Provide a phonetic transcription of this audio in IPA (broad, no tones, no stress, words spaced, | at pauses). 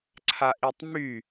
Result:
ǀʰaʔitˤmy